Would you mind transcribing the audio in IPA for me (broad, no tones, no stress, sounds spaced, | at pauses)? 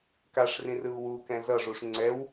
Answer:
k a ʂ r ĩ r ɯ u̯ w u k ɛ̃ z ʌ ʐ u ʂ ŋ͡ǀ ɛ w